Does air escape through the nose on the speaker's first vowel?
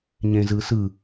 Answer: yes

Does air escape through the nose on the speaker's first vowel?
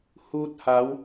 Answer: no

